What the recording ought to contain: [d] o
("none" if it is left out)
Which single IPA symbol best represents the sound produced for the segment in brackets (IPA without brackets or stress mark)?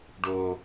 ɖ